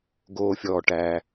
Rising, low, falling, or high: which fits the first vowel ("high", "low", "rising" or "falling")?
low